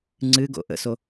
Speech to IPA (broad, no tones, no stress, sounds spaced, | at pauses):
ŋ͡ǀ ɨ ɡ o̰ ʔ ə̰ s o